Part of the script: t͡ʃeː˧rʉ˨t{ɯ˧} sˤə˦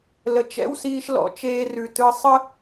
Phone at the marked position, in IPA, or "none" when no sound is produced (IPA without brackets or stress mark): ɯ˧